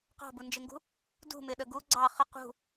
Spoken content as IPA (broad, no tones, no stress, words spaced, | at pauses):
qɑ̤bund͡ʒɪŋɡṳ | dṳmɪɗə ɡu ɡ͡ǀɑ χə qṳ